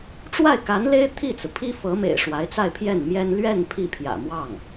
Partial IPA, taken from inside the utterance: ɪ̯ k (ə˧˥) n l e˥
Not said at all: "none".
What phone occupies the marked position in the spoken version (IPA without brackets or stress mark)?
a˧˥